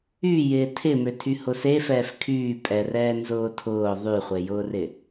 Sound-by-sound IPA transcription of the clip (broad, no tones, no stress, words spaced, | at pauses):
y jɪːtʰɪmø tʰyhʊsefɛːf kʰyː pʼɛrɛː nzʊːtʰʊː ðˤyχʷejʊːrɪ